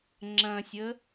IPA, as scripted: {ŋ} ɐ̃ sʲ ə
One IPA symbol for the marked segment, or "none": ŋ͡ǁ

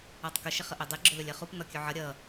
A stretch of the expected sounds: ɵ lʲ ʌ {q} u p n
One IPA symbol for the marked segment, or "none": χ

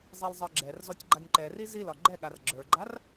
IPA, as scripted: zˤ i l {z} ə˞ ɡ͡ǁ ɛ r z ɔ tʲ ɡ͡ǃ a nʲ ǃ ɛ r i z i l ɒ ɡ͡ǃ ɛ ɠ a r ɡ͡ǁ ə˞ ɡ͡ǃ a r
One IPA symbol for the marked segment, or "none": zˤ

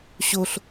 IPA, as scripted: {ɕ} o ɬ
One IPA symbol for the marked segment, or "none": ɕ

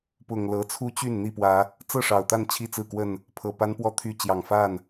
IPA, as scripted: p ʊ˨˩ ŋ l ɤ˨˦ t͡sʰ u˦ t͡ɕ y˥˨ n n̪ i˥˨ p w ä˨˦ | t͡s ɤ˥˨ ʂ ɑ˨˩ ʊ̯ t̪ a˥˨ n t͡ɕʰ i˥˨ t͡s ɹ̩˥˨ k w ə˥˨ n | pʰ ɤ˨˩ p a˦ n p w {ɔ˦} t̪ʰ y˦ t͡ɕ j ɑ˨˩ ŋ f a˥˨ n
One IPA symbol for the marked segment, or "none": ɔ˦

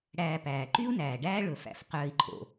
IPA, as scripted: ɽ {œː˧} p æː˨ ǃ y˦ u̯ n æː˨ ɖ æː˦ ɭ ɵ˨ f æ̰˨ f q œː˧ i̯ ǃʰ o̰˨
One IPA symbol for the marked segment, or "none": æː˧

